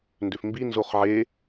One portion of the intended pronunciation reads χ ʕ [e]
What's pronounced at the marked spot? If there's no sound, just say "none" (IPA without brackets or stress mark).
e